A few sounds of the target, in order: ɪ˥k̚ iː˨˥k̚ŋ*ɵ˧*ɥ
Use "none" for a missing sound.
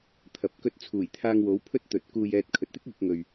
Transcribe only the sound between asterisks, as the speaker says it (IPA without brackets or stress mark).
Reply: ɵ˧